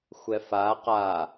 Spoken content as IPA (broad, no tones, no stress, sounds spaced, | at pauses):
xʷ ɛ f a q a